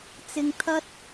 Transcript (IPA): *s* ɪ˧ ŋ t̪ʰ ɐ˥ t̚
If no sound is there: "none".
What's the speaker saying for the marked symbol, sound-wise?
t͡s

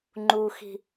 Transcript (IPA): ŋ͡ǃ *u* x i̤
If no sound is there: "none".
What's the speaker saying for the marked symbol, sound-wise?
u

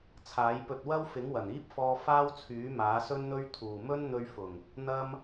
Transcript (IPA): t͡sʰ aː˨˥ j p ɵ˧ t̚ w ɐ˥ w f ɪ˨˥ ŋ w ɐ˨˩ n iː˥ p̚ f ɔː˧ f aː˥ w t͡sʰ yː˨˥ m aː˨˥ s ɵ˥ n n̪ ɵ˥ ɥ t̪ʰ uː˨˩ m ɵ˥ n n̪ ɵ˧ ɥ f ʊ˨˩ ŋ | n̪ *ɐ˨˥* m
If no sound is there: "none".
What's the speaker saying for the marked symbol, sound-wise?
ɐ˥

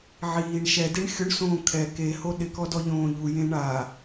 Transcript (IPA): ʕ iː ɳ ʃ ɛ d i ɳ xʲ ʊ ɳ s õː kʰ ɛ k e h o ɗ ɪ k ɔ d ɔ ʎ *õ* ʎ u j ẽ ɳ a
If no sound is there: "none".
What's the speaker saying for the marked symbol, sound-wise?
õː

